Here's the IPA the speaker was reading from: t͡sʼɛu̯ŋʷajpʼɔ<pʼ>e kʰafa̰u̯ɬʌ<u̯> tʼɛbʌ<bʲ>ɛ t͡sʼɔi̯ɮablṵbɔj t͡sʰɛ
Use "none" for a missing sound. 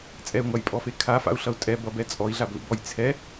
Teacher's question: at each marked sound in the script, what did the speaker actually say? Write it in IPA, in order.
f, u̯, b

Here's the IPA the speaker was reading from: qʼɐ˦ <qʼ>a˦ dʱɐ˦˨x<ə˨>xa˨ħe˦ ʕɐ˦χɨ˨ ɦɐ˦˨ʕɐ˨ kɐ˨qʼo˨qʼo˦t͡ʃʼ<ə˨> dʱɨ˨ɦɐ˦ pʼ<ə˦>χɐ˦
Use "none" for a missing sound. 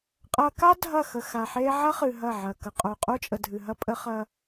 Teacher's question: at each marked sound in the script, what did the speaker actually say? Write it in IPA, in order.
k, ə˨, ə˨, ə˦

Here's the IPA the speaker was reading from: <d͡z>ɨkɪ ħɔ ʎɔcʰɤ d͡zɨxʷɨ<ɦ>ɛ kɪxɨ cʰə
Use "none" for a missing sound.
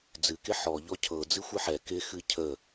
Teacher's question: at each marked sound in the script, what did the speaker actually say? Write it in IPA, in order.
d͡z, ħ

